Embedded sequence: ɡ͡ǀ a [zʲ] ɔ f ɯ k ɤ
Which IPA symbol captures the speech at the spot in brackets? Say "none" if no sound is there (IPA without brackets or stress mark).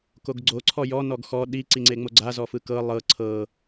z